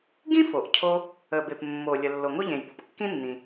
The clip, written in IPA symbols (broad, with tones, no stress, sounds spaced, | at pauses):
ɡ ĩ˥ f o˩ ʔ cʰ o˧ | ə˩ b e˩ p mː o˩ lʲ ə˩ lː o˩ ŋ o˥ ʎ ẽ˩ j b ɔ˩ p kː ĩ˥ nː ĩ˩